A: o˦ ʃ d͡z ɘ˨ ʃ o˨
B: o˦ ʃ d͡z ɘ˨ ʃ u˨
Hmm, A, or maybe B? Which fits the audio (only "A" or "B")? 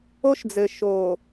A